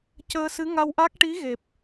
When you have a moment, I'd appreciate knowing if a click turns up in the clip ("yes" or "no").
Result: no